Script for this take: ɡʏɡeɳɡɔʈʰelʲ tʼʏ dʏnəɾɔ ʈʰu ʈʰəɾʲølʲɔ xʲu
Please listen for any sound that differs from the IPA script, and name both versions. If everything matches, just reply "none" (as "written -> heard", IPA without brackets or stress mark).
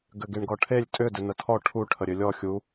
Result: ɾ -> tʰ